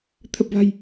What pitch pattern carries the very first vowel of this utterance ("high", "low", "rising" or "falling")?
low